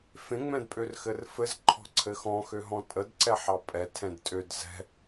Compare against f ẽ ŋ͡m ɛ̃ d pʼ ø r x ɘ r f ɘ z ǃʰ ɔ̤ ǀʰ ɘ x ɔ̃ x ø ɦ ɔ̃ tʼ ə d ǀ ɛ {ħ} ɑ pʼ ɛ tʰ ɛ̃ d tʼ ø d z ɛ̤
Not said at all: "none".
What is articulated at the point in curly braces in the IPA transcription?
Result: ħ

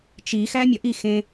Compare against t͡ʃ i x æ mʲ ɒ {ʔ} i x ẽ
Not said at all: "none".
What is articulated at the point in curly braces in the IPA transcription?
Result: ʔ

